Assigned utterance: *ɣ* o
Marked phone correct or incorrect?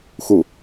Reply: incorrect: x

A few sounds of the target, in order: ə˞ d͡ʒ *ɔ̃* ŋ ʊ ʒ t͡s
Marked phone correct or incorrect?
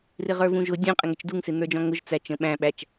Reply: correct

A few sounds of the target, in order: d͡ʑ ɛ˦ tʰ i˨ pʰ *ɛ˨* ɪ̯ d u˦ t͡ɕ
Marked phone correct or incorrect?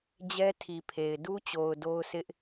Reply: incorrect: e˨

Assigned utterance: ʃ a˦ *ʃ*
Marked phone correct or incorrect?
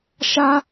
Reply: incorrect: none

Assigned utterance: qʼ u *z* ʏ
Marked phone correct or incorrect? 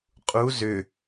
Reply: correct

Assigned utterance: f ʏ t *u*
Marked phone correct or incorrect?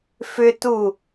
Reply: correct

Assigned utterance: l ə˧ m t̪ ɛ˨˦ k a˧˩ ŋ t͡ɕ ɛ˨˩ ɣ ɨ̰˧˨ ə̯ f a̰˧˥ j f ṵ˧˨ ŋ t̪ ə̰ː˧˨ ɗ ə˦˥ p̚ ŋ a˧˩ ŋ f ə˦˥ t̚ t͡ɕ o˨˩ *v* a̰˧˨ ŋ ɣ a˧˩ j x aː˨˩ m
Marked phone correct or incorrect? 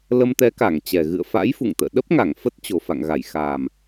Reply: incorrect: f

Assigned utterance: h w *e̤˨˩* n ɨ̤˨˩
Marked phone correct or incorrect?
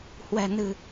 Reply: incorrect: ɛ̤˨˩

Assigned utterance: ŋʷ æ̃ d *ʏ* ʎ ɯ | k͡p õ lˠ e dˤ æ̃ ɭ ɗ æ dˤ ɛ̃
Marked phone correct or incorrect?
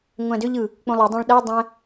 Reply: correct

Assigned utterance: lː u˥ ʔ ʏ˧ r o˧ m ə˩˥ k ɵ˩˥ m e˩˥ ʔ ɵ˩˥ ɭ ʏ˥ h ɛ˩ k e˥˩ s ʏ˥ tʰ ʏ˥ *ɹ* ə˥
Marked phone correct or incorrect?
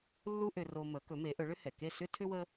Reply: incorrect: w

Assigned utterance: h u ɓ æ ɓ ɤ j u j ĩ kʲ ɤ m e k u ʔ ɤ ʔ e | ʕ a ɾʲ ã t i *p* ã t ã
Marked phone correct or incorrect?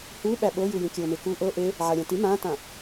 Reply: incorrect: m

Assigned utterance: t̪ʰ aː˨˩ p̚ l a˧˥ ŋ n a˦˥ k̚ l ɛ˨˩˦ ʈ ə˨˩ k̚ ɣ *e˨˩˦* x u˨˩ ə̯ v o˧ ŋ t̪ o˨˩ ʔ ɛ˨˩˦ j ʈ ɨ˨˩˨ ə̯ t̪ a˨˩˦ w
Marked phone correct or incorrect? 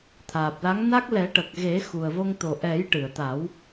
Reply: correct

